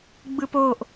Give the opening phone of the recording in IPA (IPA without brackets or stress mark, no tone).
ɡ͡b